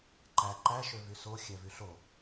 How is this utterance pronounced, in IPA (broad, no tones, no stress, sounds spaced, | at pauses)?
ǃ æ ǃ æ ʃ ø v y s o xʲ æ v y ɬ o